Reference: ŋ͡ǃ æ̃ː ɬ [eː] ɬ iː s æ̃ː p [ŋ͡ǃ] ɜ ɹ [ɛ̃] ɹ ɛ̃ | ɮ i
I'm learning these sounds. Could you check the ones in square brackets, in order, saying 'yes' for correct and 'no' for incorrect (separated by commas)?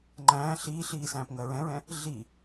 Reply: no, no, yes